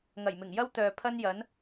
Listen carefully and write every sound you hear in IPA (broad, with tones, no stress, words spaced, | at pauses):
ŋɐ˨˩jmɪ˨˩ŋjɐ˥w t̪œː˨ pʰɐ˥njɐ˨˥n